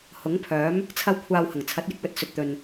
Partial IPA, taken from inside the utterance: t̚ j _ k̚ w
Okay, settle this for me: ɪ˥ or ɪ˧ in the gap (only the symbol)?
ɪ˧